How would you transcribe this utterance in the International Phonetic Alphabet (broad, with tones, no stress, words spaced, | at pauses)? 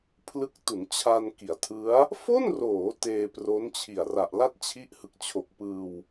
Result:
pʰlɯ˦˥k̚tu˩˦nt͡ɕʰa˧n ki˩˦a̯tʰɯ˦˥a̯ | fo˥˩nroː˩˦ teː˧pro˦˥nt͡ɕʰi˨˩a̯ ra˨˩ʔla˥˩t̚t͡ɕʰi˦˥ʔ hɯ˨˩k̚t͡ɕʰo˨˩k̚pɯː˧w